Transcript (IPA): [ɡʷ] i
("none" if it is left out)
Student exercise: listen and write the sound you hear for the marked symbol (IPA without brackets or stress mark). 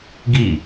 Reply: ɡ